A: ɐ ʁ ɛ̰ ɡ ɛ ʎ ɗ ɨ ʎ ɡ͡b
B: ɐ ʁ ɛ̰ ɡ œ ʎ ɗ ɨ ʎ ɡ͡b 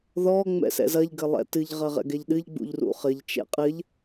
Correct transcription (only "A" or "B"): A